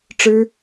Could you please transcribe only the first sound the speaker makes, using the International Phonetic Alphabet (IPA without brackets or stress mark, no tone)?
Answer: ʈ͡ʂ